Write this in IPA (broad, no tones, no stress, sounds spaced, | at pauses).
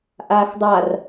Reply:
ʔ aː x dˤ a r